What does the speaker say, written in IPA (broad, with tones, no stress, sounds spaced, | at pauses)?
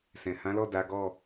s ɛ̃˨ h ã˨˦ l ɔ˦˨ d a˨˦ ɡ ɔ˦˨